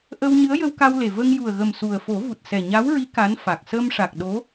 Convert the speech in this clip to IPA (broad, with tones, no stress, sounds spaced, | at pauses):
ʔ ə˧ w ɲ ɨ˧˥ ə̯ j ə˧ w k a˧ w l e˨˩ v ə˧ ŋ j u˨˩ ə̯ ɣ ə˨˩ m s u˨˩ ə̯ f o˨˩˦ v u˨˩ t̚ s ɛ˨˩ ɲ a˧˥ w ɹ i˧˥ k a˧˥ n f a˨˩ k̚ s ə˧ m ʂ a˨˩ k̚ ɗ o˧˥